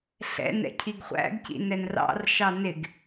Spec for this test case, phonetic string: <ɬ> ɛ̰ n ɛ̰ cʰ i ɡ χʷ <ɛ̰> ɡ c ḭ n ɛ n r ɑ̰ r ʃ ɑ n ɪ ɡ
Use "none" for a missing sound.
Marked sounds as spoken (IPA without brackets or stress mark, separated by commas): ɬ, æ̰